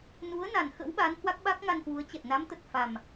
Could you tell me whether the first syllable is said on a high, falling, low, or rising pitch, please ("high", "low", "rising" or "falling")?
rising